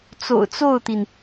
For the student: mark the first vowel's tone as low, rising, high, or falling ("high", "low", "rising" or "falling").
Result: low